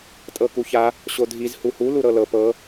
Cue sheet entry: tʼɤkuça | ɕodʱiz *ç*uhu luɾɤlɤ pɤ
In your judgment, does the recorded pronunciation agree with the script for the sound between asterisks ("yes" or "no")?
no